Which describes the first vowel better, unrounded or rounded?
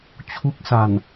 rounded